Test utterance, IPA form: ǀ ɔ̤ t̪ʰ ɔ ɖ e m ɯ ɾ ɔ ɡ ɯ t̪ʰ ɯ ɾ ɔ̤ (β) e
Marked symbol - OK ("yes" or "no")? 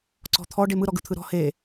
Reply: no